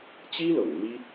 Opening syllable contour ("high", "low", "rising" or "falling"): high